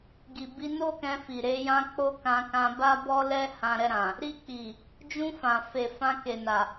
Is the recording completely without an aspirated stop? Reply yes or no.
yes